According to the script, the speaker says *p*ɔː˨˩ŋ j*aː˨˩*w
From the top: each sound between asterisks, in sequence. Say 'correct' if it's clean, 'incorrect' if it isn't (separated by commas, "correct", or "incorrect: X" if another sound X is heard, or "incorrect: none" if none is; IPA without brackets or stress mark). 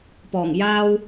correct, incorrect: aː˥